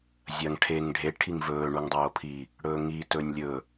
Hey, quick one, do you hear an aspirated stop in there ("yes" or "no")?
yes